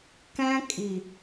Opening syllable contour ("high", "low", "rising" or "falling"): high